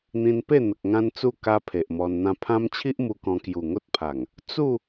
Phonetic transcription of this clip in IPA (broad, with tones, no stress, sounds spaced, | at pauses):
n̪ ĩ˧ n p e˥˧ n̪ ə˨ k̚ ŋ ã˦ n t͡s u˥˧ k a˦ pʰ e˨ ʔ m ɔ˧ n n̪ ã˦ pʰ ã˦ m t͡ɕʰ i˦ ʔ m u˧ k ɔ̃˧ k j u˨˩ ŋ o˦ t̚ pʰ a˨˩ ŋ | t͡s u˥˧